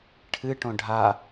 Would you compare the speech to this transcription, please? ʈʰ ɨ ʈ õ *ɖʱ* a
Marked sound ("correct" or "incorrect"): correct